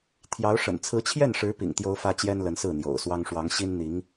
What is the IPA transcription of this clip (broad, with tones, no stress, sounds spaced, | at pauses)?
t̪ʰ j ɑ˧˥ ʊ̯ ʂ ə̰˨˩ n t͡sʰ ɹ̩˧˥ t͡ɕʰ j ɛ˥˩ n ʂ ɻ̩˧˥ p ḭ˨˩ ŋ t̪ j o˥ ʊ̯ f ä˥ t͡ɕ j ɛ˥ n l ə˧˥ n s ɹ̩˥˩ n̪ j o̰˨˩ ʊ̯ s w ɑ˥ ŋ ʂ w ɑ˧˥ ŋ ɕ i˥ n n̪ i˧˥ ŋ